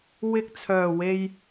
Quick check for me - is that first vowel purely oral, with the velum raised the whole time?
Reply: yes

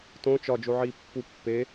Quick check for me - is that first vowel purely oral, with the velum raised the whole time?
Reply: no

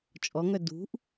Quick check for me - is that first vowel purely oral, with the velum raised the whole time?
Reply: yes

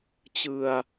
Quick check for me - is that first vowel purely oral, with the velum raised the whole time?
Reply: yes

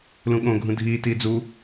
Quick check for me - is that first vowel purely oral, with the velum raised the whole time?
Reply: no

